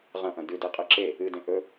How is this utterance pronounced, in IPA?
ʁ ɐ̃ ʔ ɐ̃ d ʉ d i qʼ ɨ ǁ e | ɨ d ẽ ʔ ɵ

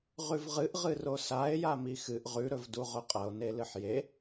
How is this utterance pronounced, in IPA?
ʁ ʉ v ʁ ɨ ʔ ʁ ɨ r o s a e̯ j a m i x ɨ ʔ ʁ ʉ ɾ ɵ v d u ʁ ɵ qʼ ɐ o̯ n e l ɨ ħ j e

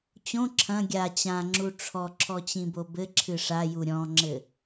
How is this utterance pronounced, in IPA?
t͡ɕ õ ǁʰ ɐ̃ ɡʲ a t͡ɕ ã ŋ͡ǁ u ʈ͡ʂʰ ɔ ǁʰ ɔ t͡ɕ ĩ b o b ɘ ǁʰ ɨ ʂ a j u ɾʲ ɔ̃ ŋ͡ǁ ɘ

